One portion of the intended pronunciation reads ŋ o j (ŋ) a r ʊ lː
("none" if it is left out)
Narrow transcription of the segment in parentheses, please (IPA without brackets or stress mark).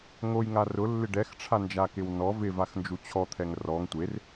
ŋ